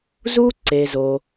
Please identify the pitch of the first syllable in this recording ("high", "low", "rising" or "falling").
high